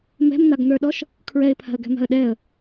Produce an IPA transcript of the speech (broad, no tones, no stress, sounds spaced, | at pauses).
m ɛ̤ m n̪ a ɡ n̪ ə˞ ɗ ɔ ʃ | kʰ ɹ ɛ ɪ̯ pʰ a̤ ə̯ ɡ ɛ̤ m a̤ ə̯ ɗ ɛ ə̯